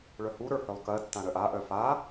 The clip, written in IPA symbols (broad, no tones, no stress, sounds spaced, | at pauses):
ɭ œ h u ɾ ə˞ h œ lˠ k ɜ tː ã ɾ œ ʔ a ʔ œ f a